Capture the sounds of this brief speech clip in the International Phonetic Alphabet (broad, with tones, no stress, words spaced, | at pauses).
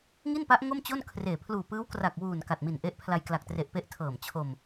ŋi˥˩npa˦˥ʔ ŋo˥˩mt͡ɕo˥˩n kʰreː˨˩ pʰluː˨˩pɯː˦˥wkra˨˩k̚ wuː˨˩n ka˨˩t̚mi˨˩nʔe˦˥ʔ pʰla˧jkla˨˩k̚tre˨˩ʔpe˦˥ʔ tʰɤː˨˩mt͡ɕʰo˧m